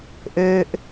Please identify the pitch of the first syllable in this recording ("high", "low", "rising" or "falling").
low